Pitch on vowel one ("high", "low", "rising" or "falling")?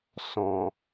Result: low